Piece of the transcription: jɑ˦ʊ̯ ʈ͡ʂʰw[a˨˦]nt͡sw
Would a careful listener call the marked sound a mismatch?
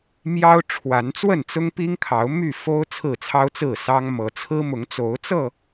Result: no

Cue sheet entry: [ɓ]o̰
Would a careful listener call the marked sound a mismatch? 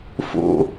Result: yes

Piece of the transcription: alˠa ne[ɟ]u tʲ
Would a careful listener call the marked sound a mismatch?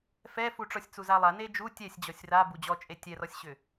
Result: yes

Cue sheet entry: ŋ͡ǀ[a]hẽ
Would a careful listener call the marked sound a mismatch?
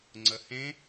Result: yes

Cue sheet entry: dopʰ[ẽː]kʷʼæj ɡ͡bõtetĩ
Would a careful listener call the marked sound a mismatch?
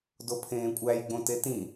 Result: no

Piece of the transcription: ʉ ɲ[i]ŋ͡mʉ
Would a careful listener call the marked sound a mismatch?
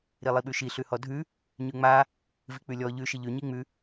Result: no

